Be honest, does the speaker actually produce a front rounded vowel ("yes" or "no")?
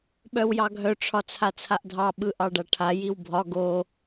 yes